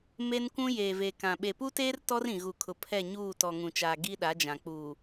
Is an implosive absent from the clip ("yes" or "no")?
no